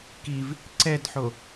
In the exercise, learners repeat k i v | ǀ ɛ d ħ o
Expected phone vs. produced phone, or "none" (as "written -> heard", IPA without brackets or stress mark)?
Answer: none